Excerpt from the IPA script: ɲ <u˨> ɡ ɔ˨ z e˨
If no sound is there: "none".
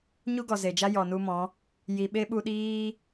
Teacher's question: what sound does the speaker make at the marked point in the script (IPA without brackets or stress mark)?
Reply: u˦